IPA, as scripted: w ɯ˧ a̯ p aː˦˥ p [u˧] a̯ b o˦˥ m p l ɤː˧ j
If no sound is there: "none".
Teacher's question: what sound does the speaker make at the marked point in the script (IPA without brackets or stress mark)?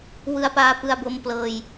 ɯ˧